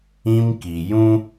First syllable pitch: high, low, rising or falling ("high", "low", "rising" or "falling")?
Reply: high